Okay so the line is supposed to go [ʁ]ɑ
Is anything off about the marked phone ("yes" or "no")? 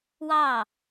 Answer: yes